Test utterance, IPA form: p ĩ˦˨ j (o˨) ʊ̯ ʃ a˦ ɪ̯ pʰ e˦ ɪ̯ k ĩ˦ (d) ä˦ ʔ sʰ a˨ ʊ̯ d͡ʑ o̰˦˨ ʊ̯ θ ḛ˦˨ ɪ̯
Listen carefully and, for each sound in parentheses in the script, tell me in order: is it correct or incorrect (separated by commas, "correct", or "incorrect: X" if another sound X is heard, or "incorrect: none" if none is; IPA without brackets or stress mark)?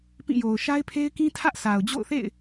correct, incorrect: tʰ